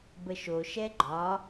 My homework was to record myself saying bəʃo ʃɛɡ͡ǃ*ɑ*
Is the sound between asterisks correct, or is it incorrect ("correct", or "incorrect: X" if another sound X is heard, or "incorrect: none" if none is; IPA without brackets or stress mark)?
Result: incorrect: ɒ